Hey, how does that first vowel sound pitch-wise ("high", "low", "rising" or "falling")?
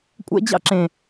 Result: high